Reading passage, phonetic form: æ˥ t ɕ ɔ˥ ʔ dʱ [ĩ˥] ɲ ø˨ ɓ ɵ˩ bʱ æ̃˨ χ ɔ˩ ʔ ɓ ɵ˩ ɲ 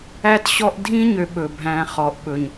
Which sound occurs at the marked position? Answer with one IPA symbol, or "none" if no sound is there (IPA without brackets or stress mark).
ĩ˥